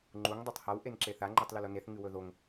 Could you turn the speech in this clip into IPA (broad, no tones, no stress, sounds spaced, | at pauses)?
ŋ͡ǃ u ŋ dˤ o tˤ h a w ʔ e n ǁ e θ a ŋ͡ǃ ʉ tˤ l ʉ l o n e θ ŋ ɨ w ɵ ð o ŋ